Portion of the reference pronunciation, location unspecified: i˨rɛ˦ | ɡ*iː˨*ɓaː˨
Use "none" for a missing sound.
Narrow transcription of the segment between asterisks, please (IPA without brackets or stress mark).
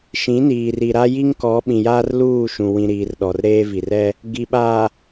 i˨